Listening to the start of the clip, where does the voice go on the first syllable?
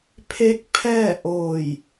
rising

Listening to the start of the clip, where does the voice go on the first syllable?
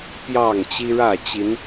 falling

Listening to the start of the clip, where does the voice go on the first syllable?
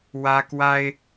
high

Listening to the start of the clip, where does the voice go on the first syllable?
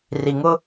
low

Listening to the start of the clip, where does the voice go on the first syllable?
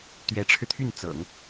rising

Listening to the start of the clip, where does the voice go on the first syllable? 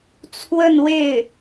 falling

